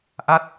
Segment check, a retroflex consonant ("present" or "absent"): absent